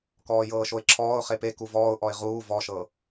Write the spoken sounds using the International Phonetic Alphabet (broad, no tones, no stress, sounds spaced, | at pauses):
k ɔː j ɤː ʃ o ɪ̯ ǁʰ ɔː ʊ̯ χ e p e k u v ɔː ʊ̯ ʔ ɔ ɪ̯ ʁ uː v ɔ ʃ ɤ